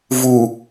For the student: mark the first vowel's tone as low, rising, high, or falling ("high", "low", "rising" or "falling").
low